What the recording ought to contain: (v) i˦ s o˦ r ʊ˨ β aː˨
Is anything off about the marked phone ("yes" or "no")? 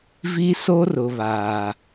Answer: no